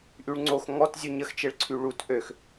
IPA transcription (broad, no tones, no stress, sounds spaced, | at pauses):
ʔ y ɭ ŋ͡ǀ o x ŋ ɔ t zʲ u ɲ ə x t͡ʃ e ɭ ǀʰ y ɭ u t ʔ ø x